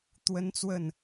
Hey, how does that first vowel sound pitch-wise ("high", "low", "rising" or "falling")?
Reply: high